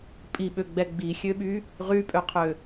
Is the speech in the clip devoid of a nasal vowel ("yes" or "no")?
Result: yes